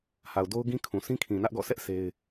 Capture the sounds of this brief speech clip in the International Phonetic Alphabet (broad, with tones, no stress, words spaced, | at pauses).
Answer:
ha˨ʊ̯ do˦ʊ̯ɡĩ˦ kʰũ˨ sʰĩ˦kʰĩ˨nä˦ʔɡɔ̰˦˨ sʰɛ˦ʔ se˦ɪ̯